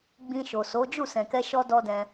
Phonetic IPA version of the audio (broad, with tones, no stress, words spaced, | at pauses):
ɡ͡bĩ˧ ʃo˨so˨˦ d͡ʒu˦˨sɛ̃˨kɛ˧ ʃɔ˦dɔ˦dɛ̃˧